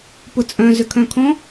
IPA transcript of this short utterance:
pʊt͡sʼœ̃ zʏkʰœ̃kʰɔ̃

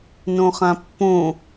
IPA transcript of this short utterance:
nõχãpːõ

